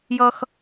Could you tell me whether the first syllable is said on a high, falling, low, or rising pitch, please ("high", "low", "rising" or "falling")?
high